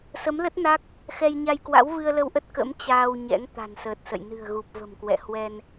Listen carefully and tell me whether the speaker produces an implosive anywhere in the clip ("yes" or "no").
no